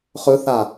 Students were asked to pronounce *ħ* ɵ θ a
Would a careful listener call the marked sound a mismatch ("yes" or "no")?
yes